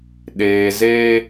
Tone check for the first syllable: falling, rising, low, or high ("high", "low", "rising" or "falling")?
low